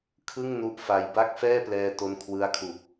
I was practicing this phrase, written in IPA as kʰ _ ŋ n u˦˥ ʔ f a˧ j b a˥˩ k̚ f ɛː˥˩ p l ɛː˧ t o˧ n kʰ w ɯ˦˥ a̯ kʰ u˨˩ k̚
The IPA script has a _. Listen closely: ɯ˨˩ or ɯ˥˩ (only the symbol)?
ɯ˥˩